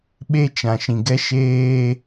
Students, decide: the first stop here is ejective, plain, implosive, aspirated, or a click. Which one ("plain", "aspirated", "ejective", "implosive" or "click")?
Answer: implosive